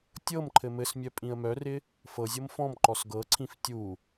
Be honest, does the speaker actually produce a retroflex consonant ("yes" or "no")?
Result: no